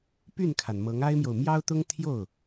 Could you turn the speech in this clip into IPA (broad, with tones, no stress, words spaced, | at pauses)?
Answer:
py˥˩nkʰa˩n mɤ˧˥ŋa˥ɪ̯mjo˨ʊ̯ mjɑ˥ʊ̯t̪ʊ˥ŋt̪ʰjo˥˩ʊ̯